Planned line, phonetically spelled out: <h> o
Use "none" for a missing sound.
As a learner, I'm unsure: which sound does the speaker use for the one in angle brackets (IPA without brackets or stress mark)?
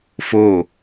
f